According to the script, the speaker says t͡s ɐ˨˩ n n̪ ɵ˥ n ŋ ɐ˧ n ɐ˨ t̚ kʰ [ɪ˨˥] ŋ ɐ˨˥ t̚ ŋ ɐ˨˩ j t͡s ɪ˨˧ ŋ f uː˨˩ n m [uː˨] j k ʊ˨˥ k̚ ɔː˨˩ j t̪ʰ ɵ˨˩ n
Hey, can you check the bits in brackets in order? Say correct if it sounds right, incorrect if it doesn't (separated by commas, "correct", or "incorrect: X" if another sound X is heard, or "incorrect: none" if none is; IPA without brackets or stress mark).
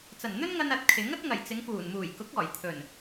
correct, incorrect: uː˨˩